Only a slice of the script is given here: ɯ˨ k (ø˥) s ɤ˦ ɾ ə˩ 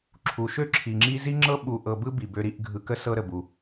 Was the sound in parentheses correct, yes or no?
no